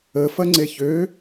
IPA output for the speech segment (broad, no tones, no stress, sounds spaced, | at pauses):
ə f ɐ ŋ͡ǀ e ç ø